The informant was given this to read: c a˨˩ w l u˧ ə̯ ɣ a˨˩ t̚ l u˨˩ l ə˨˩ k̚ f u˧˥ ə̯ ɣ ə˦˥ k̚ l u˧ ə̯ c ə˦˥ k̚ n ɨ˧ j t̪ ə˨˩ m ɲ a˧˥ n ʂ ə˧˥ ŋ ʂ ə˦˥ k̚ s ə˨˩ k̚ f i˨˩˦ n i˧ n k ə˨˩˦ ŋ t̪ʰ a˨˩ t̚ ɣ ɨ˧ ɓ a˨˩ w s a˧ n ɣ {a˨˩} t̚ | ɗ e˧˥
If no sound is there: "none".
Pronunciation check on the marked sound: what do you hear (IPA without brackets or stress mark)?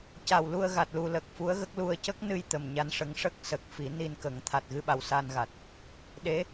a˨˩